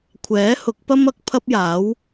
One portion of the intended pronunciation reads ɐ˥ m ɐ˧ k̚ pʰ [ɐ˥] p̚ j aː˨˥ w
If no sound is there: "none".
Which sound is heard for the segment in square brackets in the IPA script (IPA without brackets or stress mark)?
ɐ˥